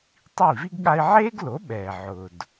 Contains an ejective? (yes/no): no